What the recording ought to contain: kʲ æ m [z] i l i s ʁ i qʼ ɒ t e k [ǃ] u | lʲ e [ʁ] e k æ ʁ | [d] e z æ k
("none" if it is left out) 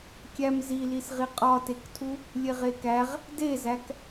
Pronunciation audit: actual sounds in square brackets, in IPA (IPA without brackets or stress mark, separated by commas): z, tʰ, ʁ, d